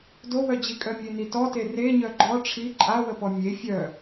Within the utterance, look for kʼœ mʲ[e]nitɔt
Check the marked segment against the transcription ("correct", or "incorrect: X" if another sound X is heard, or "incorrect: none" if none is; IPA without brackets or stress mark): correct